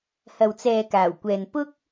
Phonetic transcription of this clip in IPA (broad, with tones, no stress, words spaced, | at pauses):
hɐ˨wt͡sɛː˨ kaː˨˩wkʷɛː˨n pʊ˥k̚